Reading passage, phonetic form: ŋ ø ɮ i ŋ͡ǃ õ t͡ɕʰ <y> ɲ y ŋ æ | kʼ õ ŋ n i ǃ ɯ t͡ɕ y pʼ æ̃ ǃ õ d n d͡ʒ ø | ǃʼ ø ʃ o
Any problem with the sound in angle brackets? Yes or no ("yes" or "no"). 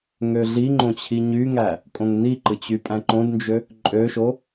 yes